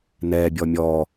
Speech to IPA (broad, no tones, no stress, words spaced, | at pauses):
nɛbʲɔ mʲɔ